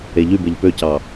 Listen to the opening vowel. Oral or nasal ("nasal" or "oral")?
oral